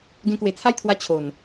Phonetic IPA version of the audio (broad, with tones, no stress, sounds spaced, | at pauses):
ɡ ẽ˧ k w e˨˩ t͡sʰ a˥˧ j t̪ʰ w a˧ t͡ɕʰ o˨˩ n